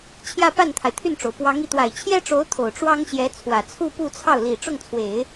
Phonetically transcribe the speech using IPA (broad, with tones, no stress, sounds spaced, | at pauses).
t͡ɕʰ j ä˥˧ p a˥˩ n t̪ʰ a˩ ɪ̯ t̪ʰ y˥˩ n ʈ͡ʂ o˩ ʊ̯ p w ɑ˧˥ ŋ i˧˥ t̪ w a˨˩ ɪ̯ t͡ɕʰ j ɛ˥ ʈ͡ʂ o˧˥ ʊ̯ t̪ʰ o˨˩ ʊ̯ ʈ͡ʂ w ɑ˥ ŋ ɕ j ɛ˧˥ t͡sʰ w ä˨˩ t͡sʰ u˥˧ p u˥˧ t͡sʰ ɑ˥˩ ʊ̯ l i˨˩ ʈ͡ʂ ʊ˥˩ ŋ t͡sʰ w e˨˩˦ ɪ̯